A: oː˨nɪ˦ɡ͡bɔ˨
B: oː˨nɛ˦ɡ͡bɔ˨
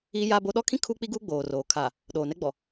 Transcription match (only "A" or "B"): B